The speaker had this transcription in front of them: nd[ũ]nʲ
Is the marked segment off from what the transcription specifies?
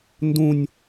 no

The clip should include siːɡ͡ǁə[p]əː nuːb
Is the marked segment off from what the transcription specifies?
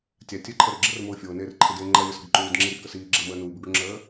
yes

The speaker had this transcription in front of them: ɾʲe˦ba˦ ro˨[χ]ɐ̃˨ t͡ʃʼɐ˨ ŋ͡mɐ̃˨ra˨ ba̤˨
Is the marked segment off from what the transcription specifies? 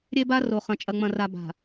no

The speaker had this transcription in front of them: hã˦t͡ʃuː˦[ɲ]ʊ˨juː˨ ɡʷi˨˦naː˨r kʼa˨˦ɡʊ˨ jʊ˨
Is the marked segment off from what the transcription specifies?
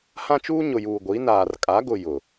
no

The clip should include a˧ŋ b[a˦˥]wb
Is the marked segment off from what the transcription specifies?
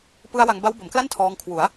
no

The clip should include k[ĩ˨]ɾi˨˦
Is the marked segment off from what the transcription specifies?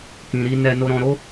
no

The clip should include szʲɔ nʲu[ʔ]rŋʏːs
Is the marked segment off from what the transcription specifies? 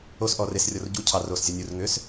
yes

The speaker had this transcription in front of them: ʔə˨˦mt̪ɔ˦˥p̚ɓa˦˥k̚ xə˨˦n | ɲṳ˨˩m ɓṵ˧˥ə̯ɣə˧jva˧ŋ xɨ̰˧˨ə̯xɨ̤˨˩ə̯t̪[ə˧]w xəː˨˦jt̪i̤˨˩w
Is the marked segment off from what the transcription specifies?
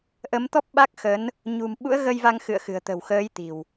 yes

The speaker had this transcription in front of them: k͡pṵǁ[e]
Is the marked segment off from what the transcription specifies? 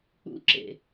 yes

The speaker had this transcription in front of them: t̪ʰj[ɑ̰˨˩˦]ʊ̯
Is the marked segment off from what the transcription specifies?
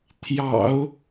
no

